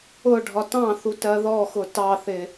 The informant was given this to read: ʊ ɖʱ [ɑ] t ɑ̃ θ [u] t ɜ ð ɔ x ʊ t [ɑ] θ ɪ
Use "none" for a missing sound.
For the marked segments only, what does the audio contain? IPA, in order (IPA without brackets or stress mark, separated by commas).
ɒ, u, ɑ